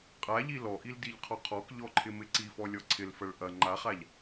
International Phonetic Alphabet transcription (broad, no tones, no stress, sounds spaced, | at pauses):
qʼ a ʎ i l ɔ ʔ i l d i ʎ qʰ ɔ qʰ ɔ k ʎ ɔ ǃʰ ɪ m ɪ ǀ i f ɔ lʲ ɔ ǀʰ ɪ l f ɐ ɭ ʔ ɐ ŋ͡ǃ a χ a ʎ